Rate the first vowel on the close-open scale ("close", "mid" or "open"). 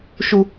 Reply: close